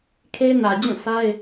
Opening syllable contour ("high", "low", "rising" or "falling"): high